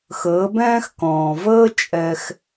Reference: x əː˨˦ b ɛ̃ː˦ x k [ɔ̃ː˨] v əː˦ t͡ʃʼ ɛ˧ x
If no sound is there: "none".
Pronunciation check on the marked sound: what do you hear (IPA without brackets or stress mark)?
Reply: ɔ̃ː˨